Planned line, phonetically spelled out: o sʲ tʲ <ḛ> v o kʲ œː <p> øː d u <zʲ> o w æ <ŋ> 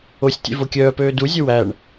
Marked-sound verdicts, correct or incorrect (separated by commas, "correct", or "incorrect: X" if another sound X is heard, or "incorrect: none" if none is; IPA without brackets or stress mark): correct, correct, correct, incorrect: ɳ